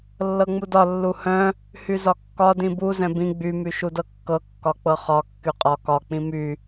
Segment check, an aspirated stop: absent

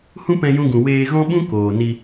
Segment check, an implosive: present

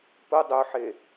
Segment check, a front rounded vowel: present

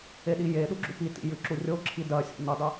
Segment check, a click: present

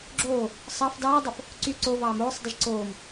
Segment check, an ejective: absent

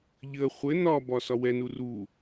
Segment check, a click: absent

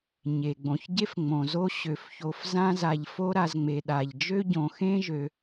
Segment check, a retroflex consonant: absent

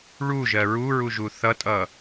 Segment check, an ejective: present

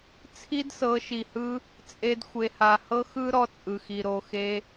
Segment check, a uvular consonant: absent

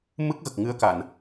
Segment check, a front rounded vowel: absent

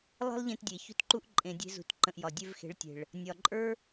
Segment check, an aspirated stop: absent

